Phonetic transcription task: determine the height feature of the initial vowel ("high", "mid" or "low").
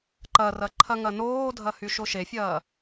low